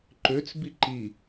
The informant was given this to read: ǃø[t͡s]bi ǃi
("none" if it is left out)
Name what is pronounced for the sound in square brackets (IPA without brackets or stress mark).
t͡s